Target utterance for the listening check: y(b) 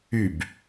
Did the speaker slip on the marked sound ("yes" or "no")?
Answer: no